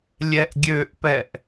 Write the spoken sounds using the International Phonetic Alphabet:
lʲɛʔɡʲøʔpɛʔ

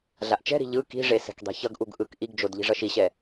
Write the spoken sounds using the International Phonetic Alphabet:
ɮaʔt͡ʃɛ̤ɾi̤ ʎɯ ki̤ʐe sɛ̤kdˤi̤çʌɡʔuɡ ʔɯk ʔiɡd͡ʒod ʎi̤ʐʌʃiɕɛ

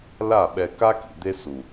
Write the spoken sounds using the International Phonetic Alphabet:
la˦˨ɓɛ˧ ka˦kḭ˨ d̪e˦su˨

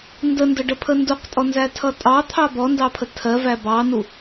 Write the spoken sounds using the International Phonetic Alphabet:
ndəndəɖəpʰə nduqtʼɔnzætʰʌ tʼɑt̪ʰɑ bɔndɑpʰə tʰɜvæ bɑnu

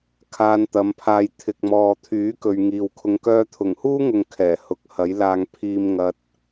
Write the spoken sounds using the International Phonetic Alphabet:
kʰaː˧nt̪ɐ˨˧mpʰaː˧j t̪ʰɪ˨k̚mɔː˨t̪ʰyː˨˥ kɵ˨ɥŋiː˨wkʰʊ˧ŋ kœː˧t̪ʰʊ˨˩ŋhuː˥ŋʊ˨ŋ kʰɛː˨˩hʊ˨˥k̚ hɐ˨˥jlaː˧ŋ pʰiː˨m ŋɐ˧t̚

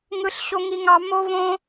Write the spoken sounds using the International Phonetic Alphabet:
ŋɯ˥ɬɕo˥ŋi˥ŋɑ˥ mo˥võ˥

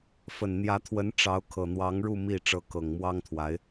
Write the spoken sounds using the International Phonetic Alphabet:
fə˨˩nn̪jä˧˥t̪ʰwə˧˥n ʈ͡ʂɑ˧˥ʊ̯ kʰɤ˨˩n̪wɑ˧˥ŋɻu˥˧ mi˥˩ ʈ͡ʂɤ˧˥kɤ˨˩ŋmwɑ˥ŋt̪ʰwa˧˥ɪ̯

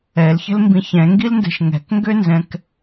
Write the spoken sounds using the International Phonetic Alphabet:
ɛlçə̤lmbĩ çɛ̃ŋɡilndɛ̤ʃ ŋɛ̤kŋɡønzɛ̃k

